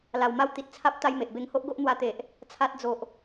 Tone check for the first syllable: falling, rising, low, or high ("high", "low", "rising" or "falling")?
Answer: low